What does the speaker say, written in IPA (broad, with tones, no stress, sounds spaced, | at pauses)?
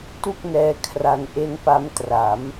t u˥˩ k̚ n ɛː˦˥ kʰ r a˧ n ʔ e˦˥ n p a˦˥ m t r a˩˦ m